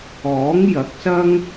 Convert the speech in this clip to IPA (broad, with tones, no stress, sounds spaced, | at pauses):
ɔː˨˥ ŋ j ɐ˨˥ k̚ s ɐ˥ ŋ